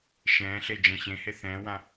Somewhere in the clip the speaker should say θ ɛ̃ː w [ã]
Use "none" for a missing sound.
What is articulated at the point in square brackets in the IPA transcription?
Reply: ã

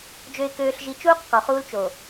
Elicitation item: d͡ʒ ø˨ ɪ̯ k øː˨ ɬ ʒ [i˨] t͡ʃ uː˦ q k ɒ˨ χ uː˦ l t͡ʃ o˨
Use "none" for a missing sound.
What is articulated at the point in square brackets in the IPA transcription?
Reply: i˨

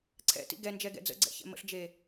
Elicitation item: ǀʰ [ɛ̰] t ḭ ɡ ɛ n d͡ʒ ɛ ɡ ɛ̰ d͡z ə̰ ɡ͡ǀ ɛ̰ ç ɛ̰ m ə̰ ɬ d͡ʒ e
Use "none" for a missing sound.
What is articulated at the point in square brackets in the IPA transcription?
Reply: ɛ̰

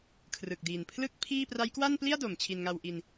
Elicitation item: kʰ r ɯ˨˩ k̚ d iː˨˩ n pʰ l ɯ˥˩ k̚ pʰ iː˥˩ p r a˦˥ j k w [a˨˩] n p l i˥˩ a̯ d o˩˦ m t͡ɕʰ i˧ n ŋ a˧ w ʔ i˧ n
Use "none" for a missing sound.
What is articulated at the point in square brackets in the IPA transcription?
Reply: a˥˩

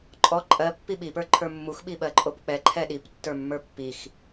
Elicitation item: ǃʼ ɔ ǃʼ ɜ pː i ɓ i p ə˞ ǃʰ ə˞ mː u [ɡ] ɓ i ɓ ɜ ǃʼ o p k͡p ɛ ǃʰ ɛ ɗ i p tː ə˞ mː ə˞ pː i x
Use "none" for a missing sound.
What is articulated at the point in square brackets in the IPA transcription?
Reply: x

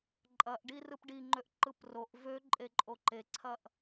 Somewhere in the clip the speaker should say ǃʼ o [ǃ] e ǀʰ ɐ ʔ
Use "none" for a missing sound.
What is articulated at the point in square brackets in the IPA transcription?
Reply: ǃ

